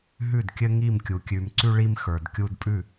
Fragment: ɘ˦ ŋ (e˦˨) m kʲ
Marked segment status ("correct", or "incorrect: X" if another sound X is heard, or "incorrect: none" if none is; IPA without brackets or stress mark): incorrect: i˦˨